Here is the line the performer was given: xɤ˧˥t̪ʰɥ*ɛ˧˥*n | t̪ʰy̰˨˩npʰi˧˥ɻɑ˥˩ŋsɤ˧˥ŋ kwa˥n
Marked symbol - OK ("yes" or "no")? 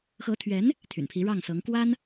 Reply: yes